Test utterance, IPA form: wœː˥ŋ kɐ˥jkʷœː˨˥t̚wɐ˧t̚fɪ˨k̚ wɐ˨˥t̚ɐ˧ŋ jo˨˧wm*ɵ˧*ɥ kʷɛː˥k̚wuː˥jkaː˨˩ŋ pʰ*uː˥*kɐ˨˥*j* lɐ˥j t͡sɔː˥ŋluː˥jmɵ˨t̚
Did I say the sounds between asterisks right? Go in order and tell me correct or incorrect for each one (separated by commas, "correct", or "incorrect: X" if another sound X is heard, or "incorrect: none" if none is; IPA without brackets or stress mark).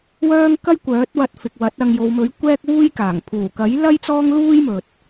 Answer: incorrect: ɵ˨˥, incorrect: uː˨˩, correct